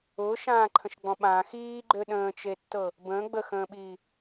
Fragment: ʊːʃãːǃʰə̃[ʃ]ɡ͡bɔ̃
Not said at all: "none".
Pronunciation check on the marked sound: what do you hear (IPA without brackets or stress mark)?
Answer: ʃ